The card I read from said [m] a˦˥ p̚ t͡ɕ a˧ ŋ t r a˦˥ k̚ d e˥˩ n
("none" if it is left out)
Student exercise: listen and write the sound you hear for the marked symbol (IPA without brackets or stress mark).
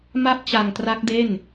m